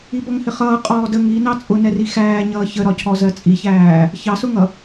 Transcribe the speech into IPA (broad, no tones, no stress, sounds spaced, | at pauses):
i b ʌ ŋ h ɪ χ ʌː qʼ ɔː d ə ŋ i n ɑ t͡sʼ ʊ n ɛ r i x æː ɲ ʌː ç ə ɾ ɒ cʰ ɔ z ɜ t͡sʼ i ç æː | ç ɑ s ʊ ŋ ʌ